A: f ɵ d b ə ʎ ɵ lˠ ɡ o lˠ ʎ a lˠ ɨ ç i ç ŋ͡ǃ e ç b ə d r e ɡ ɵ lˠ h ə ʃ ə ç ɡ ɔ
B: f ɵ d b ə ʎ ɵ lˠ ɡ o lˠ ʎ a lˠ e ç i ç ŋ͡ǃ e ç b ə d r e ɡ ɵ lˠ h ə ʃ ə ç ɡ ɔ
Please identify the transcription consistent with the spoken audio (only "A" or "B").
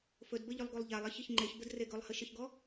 B